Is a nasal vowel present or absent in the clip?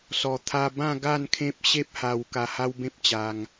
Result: present